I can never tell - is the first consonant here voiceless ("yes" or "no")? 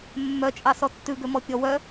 no